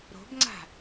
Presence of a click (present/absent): present